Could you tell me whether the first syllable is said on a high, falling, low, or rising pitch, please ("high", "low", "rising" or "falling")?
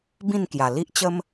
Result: falling